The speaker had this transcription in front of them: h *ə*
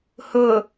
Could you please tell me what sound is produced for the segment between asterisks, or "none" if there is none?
ʊ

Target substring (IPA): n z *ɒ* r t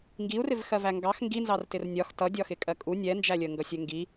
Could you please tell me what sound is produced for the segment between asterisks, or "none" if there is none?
ɑ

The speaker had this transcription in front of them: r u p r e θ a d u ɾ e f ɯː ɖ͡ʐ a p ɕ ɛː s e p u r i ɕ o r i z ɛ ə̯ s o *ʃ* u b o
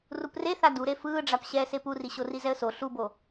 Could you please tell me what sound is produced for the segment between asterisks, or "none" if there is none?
ɬ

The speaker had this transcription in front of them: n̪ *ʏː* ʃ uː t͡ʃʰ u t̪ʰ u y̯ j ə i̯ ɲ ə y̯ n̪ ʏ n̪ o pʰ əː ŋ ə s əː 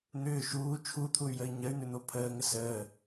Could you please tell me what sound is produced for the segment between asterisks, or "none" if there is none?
ʏː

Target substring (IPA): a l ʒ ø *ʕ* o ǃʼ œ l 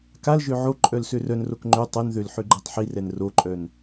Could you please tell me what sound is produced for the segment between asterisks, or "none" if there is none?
ʕ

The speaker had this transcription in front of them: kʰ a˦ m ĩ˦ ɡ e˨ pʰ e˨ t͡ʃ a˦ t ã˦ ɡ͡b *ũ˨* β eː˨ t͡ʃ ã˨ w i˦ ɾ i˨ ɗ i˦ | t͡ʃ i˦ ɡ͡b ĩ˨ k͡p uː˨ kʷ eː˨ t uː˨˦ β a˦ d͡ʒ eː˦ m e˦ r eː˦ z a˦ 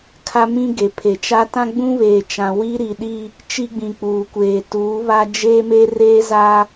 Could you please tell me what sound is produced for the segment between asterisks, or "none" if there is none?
ũ˦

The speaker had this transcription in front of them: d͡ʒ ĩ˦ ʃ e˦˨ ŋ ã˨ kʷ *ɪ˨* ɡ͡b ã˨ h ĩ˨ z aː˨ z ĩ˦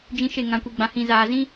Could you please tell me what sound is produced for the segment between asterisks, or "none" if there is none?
i˨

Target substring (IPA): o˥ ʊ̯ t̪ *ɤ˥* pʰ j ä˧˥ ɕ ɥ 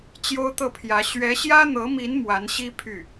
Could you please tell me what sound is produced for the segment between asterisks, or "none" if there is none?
ɤ˥˩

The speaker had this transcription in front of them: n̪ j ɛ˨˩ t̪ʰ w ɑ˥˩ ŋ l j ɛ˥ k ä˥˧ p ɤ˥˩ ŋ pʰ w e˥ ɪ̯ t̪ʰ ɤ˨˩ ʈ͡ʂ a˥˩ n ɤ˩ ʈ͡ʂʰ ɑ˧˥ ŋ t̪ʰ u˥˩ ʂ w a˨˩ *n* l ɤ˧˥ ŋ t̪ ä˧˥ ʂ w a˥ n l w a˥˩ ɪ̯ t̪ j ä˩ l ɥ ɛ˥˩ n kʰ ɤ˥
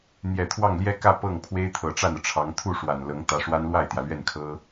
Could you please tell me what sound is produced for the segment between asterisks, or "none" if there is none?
n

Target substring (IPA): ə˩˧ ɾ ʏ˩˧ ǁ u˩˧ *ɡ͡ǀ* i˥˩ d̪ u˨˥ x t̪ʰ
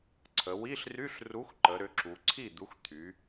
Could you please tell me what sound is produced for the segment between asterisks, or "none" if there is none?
ǀʰ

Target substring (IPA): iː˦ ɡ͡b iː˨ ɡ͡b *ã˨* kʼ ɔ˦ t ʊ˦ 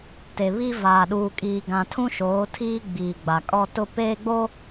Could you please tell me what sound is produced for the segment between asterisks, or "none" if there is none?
a˨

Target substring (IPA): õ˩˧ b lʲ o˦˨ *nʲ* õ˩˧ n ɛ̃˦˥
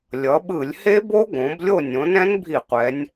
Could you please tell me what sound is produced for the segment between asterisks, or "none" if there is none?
nʲ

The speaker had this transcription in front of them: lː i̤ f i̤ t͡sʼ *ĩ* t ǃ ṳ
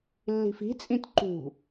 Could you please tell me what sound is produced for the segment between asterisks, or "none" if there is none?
ĩ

